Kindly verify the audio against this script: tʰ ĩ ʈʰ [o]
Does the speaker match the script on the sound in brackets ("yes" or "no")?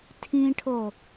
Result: yes